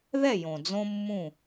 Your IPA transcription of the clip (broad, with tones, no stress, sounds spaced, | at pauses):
ð ɛ˥˨ j õ˨ d͡z õ˦ mː ũ˥˨